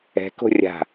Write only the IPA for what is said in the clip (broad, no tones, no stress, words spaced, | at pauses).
ɛ̤ko̤ rʲa̤